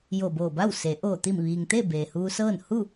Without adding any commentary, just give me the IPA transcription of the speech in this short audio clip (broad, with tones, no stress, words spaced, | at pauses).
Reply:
jo˧˩boː˧˩ba˥˨wse˩˧ ʔoː˧˩t̪i˧˩mʋiː˩ŋt̪e˥˨ beː˩huː˧sɤː˥˨n hu˥˨